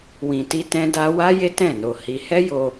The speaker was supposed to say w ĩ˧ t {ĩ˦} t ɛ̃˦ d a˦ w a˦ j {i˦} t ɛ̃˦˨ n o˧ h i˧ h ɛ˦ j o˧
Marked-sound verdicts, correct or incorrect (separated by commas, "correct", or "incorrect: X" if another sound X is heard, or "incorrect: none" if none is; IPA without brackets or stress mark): incorrect: i˦, incorrect: e˦